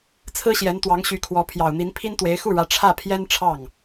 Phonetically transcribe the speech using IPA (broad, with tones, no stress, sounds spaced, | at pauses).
t͡sʰ ɹ̩˥ ɕ j ɛ˧˥ n t̪ w ɑ˧˥ ŋ ɕ y˧˥ kʰ w ɔ˧˥ pʰ j ɑ˨˩ ʊ̯ n̪ i˧˥ n pʰ i˥ n t̪ w e˧˥ ɪ̯ x u˥˩ ɻ ä˧˥ ʈ͡ʂʰ ä˥˩ pʰ j ɛ˥ n ʈ͡ʂʰ ɑ˥˩ ŋ